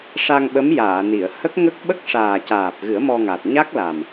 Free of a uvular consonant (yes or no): yes